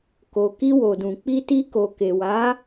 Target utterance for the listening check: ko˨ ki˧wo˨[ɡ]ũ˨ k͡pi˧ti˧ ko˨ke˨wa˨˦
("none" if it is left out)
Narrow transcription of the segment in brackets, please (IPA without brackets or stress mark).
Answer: d